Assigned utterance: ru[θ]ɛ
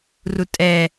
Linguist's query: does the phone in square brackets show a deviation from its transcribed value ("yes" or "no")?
yes